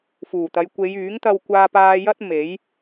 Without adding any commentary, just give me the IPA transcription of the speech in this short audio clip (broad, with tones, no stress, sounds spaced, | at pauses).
f uː˨˩ t̪ ɐ˨˧ j kʷ e˨˧ j yː˨˥ ŋ t̪ ɐ˧ w kʷ aː˧ p aː˧ j ɐ˥ t̚ m e˨˥ j